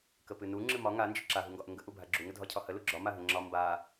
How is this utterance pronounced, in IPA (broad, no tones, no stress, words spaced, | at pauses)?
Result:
kəpɨnu ŋ͡ǁɨmɒ ŋa nd͡ʒɨǁa ɦuŋɡɒʔəŋɡə ʔubʱaɡ͡ǁu ŋədʱɒcʰɒhə luɡ͡ǁɒ maɦəŋ͡ǁɒ mba